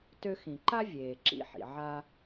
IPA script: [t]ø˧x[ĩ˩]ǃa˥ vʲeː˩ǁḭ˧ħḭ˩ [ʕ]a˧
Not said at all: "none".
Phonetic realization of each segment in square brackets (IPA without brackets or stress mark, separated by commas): t, ĩ˩, ʕ